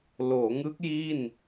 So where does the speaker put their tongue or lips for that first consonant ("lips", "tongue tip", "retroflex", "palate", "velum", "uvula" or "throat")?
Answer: tongue tip